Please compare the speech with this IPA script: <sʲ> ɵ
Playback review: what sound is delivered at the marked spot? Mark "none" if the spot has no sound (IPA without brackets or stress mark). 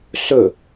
s